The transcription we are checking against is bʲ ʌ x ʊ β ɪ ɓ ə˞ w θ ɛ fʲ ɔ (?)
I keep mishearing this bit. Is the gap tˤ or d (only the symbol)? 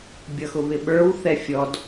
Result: d